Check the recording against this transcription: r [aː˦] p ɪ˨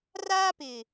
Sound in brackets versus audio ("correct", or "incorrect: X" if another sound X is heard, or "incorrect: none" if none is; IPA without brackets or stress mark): correct